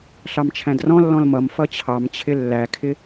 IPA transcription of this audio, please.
ɬ ɑ m t͡ʃʰ æ̃ d r ɔ̃ lː ɔ̃ l m ʌ m f ʌ t͡ɕʰ ɑ m t͡ɕʰ ɪ lː æ kʰ ɪ

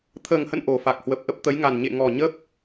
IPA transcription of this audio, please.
t̪ʰ əː˨˩ ŋ h ə̰˧˨ n ʔ o˨˩ f a˨˩ k̚ h w ə˨˩ p̚ ʔ ə˦˥ p̚ t̪ ə˨˦ j ŋ a˨˩ n ɲ ḛ˧˨ ŋ ɔ˨˩ ɲ ə˦˥ p̚

